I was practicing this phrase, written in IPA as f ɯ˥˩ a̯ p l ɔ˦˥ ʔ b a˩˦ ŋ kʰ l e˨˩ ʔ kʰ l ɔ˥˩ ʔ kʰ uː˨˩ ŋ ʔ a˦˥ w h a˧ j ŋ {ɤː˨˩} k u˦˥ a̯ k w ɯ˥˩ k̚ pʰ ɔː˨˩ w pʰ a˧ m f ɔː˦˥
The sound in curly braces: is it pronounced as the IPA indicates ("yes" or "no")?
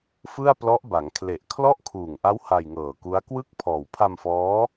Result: yes